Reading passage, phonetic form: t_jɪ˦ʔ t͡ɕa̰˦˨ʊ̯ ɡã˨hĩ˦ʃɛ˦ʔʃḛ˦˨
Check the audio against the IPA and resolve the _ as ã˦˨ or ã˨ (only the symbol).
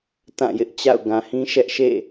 ã˦˨